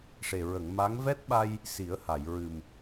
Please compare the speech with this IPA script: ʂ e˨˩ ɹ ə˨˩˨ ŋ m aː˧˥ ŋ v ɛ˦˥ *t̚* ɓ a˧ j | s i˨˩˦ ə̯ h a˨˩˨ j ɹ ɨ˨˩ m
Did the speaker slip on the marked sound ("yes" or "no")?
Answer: no